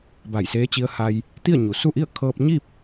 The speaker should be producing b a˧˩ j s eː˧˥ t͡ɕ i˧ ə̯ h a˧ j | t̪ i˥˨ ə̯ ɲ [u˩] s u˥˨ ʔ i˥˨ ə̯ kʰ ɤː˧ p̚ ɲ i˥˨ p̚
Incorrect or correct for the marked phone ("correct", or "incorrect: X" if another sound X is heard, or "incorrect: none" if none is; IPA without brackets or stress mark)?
correct